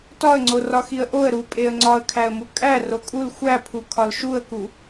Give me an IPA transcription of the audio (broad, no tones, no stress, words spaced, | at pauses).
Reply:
tɒə̯ŋ͡ǀo rɒxiə̯ʔoə̯ ɾu pʼeə̯ŋ͡ǀɒə̯kʰæə̯mu kʼæ rokʼul xʷæpʰu kʰɒlʃuə̯ku